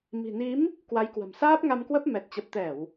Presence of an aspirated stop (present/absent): absent